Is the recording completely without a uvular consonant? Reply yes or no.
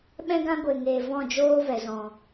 yes